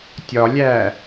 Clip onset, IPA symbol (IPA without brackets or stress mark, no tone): tʲ